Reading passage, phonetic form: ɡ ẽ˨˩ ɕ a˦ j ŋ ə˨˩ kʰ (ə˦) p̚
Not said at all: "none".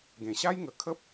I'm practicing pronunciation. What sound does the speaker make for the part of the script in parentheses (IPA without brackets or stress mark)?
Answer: ə˦